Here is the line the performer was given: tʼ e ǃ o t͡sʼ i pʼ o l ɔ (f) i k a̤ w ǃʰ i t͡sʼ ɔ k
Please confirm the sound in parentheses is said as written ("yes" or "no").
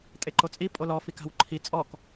yes